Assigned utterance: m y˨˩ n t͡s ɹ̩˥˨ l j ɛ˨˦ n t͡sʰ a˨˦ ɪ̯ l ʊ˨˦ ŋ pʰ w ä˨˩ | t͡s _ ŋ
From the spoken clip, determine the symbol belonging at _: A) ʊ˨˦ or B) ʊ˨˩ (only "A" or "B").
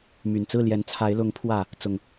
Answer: B